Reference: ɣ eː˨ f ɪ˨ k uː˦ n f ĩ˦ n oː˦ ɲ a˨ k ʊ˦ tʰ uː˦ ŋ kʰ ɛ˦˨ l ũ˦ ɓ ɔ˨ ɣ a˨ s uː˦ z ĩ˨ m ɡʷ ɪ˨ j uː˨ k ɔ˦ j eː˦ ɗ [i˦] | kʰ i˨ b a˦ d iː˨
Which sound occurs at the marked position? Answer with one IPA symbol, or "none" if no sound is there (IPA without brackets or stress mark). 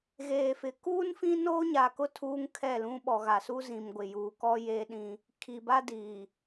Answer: ĩ˦